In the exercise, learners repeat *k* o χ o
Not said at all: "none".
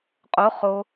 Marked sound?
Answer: qʼ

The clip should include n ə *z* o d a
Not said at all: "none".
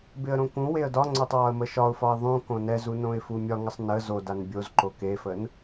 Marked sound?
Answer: z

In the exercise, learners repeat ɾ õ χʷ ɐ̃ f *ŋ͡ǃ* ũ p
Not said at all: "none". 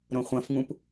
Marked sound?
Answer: ŋ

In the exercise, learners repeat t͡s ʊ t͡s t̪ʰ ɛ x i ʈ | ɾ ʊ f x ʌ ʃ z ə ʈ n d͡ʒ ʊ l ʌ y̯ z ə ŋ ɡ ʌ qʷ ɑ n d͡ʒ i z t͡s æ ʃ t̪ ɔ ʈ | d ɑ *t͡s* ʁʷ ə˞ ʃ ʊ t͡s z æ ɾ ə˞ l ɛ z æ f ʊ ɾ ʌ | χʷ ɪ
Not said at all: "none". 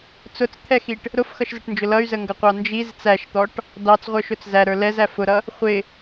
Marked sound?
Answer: t͡s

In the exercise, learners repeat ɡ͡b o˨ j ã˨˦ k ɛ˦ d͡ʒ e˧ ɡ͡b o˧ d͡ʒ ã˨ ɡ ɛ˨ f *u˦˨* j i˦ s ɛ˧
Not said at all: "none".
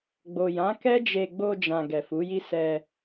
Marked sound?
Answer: u˨˦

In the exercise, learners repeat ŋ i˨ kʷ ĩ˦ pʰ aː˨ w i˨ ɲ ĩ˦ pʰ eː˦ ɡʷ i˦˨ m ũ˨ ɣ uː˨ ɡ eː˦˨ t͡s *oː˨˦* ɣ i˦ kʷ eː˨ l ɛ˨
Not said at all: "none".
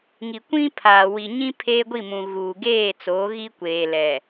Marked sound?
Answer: oː˨˦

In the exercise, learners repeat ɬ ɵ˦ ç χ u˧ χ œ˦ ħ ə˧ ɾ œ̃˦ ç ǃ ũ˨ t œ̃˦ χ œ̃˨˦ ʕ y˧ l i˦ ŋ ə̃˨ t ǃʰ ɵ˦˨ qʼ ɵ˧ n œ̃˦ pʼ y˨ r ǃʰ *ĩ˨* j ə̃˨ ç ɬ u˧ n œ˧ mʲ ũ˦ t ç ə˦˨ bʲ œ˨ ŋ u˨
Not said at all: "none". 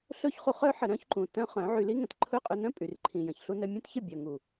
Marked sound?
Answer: ĩ˨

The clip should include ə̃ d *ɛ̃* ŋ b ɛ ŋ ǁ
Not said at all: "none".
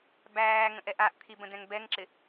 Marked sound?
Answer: ɛ̃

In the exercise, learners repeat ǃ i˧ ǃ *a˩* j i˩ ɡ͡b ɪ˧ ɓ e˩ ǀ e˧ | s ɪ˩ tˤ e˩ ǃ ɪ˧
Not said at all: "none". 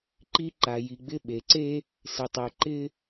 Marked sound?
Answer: a˩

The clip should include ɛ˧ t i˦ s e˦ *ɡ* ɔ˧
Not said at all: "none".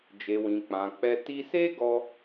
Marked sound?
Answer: ɡ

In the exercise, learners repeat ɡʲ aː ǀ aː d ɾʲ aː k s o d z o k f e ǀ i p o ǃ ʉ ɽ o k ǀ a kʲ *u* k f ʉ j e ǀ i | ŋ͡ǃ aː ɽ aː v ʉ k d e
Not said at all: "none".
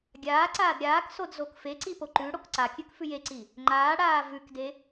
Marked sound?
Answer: ʉ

